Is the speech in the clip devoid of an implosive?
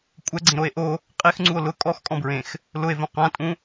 yes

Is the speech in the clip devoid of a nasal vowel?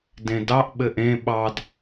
no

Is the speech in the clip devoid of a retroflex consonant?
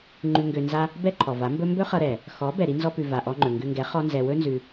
yes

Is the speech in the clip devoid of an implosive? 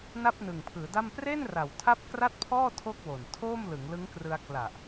yes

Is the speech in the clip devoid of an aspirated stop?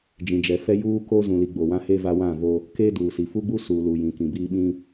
yes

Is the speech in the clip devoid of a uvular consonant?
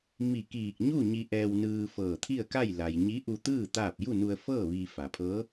yes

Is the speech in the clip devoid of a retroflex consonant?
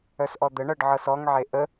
no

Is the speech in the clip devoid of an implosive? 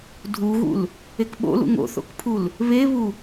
no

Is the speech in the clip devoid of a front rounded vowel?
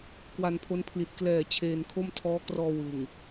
yes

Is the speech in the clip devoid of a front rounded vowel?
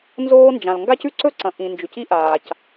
yes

